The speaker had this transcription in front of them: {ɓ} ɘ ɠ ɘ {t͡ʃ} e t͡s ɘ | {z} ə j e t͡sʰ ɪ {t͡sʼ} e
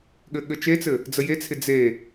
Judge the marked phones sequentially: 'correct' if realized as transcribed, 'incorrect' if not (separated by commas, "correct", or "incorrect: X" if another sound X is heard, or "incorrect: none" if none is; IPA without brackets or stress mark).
incorrect: ɠ, correct, incorrect: d͡z, incorrect: d͡z